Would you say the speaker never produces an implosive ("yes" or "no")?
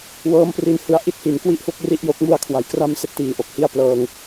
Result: yes